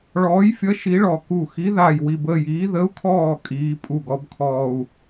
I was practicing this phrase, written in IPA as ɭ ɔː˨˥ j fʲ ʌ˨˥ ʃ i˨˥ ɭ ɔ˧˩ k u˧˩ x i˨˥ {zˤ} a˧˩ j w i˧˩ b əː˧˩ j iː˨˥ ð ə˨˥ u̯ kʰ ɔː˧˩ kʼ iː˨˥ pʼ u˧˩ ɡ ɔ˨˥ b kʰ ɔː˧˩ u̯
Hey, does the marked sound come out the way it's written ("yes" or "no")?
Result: no